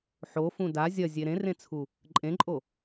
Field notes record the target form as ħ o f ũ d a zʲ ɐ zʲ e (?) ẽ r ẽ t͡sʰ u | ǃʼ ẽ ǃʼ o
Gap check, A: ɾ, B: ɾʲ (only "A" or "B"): A